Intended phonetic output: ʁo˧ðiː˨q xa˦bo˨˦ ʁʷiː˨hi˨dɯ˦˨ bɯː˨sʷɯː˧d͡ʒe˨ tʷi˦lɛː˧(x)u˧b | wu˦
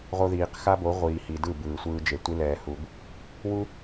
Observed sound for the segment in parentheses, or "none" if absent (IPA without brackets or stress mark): h